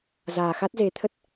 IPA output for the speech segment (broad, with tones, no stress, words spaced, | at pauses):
zaː˨˩xa˦˥t̚ze˨˦t̪ʰə˦˥t̚